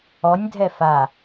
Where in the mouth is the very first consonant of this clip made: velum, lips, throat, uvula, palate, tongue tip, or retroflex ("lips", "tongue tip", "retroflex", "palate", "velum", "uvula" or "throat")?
tongue tip